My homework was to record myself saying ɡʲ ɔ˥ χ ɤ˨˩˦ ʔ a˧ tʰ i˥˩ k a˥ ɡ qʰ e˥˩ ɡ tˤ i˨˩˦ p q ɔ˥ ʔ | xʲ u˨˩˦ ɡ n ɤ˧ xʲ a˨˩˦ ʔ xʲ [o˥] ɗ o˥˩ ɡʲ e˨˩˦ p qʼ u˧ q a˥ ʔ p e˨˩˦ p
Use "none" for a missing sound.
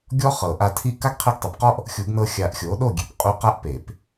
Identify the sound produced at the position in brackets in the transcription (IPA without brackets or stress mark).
o˩˥